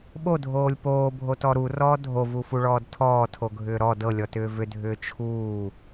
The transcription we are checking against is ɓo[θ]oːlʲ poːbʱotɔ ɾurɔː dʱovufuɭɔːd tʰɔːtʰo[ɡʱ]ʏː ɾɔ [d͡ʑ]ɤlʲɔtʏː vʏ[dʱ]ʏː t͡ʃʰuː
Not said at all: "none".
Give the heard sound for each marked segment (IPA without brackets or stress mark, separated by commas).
dʱ, ɡʱ, d, dʱ